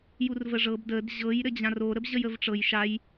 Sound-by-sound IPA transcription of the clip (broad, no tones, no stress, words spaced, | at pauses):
jurvəʐɤb dəd ʑɤj ɾɘd͡ʑãro ɾəbʑəjəvʈ͡ʂɤj ʃaj